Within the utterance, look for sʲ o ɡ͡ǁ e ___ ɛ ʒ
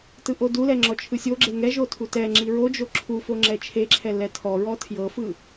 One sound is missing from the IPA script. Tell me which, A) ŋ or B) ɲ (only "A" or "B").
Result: A